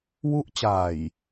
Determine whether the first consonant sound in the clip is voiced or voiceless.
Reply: voiced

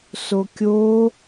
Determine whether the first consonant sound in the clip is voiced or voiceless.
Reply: voiceless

